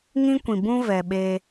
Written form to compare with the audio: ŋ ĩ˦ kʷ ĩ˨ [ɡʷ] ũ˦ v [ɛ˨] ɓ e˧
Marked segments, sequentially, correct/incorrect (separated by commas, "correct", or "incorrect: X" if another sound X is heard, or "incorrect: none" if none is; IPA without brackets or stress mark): incorrect: b, correct